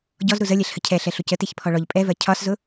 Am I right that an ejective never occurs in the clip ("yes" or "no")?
no